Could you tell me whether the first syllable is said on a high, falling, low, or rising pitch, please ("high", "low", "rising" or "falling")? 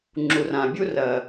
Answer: low